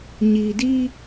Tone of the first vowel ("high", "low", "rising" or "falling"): low